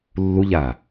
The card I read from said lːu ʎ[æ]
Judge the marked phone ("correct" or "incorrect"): incorrect